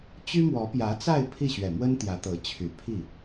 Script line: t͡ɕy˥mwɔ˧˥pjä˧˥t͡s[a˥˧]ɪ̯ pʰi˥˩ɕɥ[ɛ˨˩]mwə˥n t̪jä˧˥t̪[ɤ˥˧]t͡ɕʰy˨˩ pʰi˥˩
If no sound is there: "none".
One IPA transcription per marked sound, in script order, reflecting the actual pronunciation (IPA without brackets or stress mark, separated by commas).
a˥˧, ɛ˨˩, ɤ˧˥